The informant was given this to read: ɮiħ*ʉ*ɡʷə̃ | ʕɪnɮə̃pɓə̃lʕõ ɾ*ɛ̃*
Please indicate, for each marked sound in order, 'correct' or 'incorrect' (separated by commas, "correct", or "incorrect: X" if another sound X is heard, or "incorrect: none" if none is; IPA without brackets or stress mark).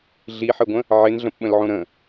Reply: incorrect: ɘ, incorrect: ə̃